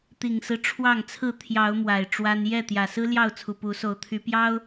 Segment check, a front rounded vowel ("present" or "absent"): present